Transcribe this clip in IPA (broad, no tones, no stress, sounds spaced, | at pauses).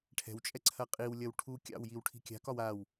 ʈʰ ɛ̤ w t͡ʃʼ ɛ ǀʰ ɐ qʼ i w lʲ ɐ w ʈʰ u kʲ ɑ̰ w j i w ʈʰ i̤ kʲ a̤ k ɒ w a w